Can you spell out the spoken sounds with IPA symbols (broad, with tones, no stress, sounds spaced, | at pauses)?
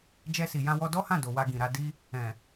d͡ʒ ɛ˧ s i˨ j ã˧ w ɔ˧ d ɔ˦ h ã˦˨ d o˨ w a˧ ɡ ĩ˨ ɾ a˧ d i˦ | ɛ̃˨